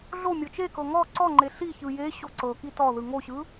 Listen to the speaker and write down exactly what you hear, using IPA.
ɮ o mʲ ɔ t͡ʃ e k ɤ ŋ ɔ ǀ ɔ ŋ͡ǃ e ɬ i ç ɯ j e ɕ o ǀ ɤ k i t ɔ ð ɯ ŋ o ɕ ɯ

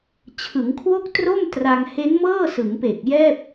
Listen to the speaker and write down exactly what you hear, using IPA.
t͡ɕʰ ɯ˩˦ ŋ kʰ w o˥˩ k̚ t r o˥˩ m t r a˧ ŋ h e˦˥ n m ɤː˥˩ s ɯ˩˦ ŋ p e˨˩ k̚ j ɛː˥˩ p̚

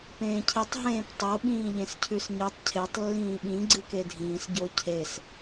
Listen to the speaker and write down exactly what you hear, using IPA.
p ẽː cʰ i tˤ ɦ ẽː p tˤ o ɓ ĩː ʎ ẽ s cʰ ʉ s ɲ ɨ tˤ cʰ e tˤ lː ĩː ɓ ĩ ɡ͡ǀ ɨ k e dʱ ĩː s ɟ o cʰ e s

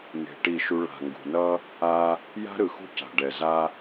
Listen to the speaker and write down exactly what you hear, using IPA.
n e̤˨ ʈ i˦˨ ʃ u˦ ɭ a̤˨ ŋ ɡ ṳ˨ n ʌ˦ | a˦ | j a̤˦ ɾ ɯ˨ x ṳ˦ c a̤˨ ɖ ɛ˨ z a˦

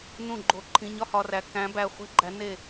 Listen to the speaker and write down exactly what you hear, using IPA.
n ũ˥˩ ɡ͡ǃ o˧˩ ǃʰ ĩ˩˧˩ ɲ ɒ˥˩ h ɒ˧ r æ˩˥ k æ̃˩˥ b æ˩˧˩ χʷ e̤˥ ɡ͡ǃ æ˩˥ n e˥˩

